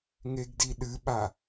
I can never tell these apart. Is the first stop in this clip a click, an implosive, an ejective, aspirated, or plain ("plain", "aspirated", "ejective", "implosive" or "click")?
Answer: plain